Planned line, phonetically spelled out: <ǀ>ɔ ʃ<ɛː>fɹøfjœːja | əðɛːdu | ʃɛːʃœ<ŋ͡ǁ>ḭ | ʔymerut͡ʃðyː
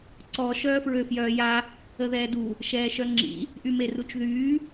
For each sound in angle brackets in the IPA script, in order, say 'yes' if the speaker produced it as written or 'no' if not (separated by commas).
yes, no, yes